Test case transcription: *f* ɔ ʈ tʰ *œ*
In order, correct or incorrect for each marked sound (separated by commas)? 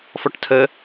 correct, incorrect